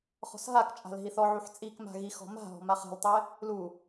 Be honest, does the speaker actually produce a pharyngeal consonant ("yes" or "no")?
yes